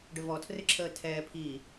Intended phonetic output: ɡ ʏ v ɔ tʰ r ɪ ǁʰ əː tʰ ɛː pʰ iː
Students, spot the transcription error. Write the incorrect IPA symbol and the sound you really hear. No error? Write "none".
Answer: ɡ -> ɖ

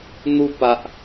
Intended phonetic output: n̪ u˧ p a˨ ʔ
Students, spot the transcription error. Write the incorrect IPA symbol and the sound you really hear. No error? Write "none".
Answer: none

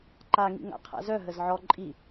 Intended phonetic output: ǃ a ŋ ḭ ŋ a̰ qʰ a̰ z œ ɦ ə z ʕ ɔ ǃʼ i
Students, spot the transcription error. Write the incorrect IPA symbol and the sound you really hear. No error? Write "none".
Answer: none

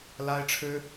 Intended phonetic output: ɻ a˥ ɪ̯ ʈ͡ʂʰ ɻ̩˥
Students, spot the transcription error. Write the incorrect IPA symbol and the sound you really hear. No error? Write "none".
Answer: ɻ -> l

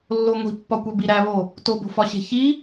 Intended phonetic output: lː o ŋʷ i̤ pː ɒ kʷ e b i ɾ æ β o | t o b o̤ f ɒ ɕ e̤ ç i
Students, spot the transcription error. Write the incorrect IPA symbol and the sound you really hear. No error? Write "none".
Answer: none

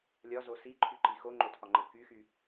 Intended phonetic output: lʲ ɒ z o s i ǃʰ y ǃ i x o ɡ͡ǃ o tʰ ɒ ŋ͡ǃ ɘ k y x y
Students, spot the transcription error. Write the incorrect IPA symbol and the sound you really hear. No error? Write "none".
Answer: ɡ͡ǃ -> ŋ͡ǃ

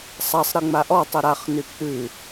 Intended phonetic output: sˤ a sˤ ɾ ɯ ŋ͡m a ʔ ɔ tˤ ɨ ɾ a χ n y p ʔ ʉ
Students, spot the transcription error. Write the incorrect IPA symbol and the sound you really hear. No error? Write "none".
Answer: none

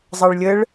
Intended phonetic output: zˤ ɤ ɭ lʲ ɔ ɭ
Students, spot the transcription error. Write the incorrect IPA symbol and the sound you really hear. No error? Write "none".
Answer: ɔ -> ə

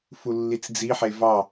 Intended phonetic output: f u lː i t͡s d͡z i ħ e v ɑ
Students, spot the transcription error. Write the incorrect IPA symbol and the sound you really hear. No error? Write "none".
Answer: none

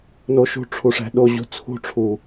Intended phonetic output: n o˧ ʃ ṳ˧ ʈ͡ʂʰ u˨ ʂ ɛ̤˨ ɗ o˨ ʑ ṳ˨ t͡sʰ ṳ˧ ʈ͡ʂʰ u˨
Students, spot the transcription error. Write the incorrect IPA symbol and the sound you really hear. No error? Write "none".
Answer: none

